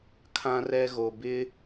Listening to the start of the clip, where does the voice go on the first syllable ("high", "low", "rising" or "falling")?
high